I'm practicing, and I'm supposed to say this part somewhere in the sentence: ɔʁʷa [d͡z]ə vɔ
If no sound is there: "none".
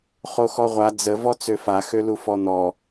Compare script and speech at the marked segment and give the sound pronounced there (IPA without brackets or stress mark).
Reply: d͡z